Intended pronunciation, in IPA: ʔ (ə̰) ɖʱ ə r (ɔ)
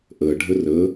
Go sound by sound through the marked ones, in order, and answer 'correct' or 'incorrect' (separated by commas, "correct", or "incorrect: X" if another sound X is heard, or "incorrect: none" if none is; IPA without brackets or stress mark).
incorrect: ə, incorrect: ə